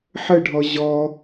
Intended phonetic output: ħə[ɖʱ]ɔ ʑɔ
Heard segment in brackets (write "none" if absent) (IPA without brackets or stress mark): ɖʱ